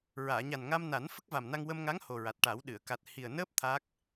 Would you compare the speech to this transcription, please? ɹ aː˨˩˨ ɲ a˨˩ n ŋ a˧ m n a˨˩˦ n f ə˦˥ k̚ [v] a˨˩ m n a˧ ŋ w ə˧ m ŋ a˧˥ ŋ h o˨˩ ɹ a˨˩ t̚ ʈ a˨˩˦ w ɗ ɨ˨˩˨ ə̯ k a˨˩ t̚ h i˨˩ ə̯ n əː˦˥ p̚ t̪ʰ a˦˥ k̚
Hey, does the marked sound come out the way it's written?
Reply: yes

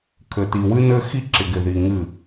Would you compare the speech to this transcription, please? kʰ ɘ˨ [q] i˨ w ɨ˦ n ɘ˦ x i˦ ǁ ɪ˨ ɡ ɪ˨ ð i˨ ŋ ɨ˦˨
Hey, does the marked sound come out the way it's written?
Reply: no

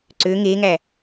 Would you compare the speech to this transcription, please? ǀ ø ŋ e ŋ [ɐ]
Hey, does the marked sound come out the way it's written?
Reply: no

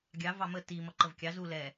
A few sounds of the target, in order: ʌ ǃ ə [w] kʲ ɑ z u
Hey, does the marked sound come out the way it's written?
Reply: no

